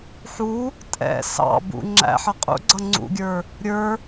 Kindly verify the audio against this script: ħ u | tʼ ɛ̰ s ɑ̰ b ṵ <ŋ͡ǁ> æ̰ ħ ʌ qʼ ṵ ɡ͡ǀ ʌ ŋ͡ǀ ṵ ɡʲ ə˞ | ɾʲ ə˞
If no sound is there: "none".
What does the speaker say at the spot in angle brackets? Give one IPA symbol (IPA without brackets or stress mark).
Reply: ŋ͡ǁ